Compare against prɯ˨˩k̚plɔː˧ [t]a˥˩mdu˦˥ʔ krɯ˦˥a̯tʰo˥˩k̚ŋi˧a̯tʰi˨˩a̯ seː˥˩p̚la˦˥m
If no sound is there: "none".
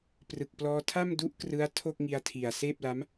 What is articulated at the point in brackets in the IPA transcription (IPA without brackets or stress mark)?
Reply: tʰ